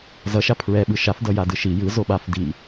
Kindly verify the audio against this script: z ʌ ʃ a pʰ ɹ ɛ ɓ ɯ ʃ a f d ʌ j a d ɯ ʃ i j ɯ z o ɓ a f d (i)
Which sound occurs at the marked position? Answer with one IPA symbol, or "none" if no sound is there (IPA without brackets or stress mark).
i